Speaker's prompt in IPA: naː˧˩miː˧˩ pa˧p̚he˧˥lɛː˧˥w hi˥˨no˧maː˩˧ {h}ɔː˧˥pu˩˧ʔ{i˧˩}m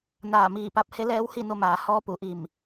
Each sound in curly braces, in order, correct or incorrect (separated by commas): correct, correct